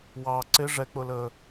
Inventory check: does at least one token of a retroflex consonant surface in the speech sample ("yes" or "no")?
yes